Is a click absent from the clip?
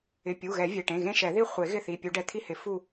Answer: yes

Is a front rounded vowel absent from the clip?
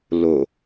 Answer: yes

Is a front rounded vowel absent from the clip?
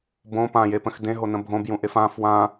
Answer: yes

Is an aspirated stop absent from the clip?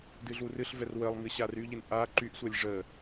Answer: yes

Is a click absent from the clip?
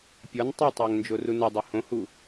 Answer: yes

